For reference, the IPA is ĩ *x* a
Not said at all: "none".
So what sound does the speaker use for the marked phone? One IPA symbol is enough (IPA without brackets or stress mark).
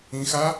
x